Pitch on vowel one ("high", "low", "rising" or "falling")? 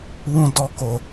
high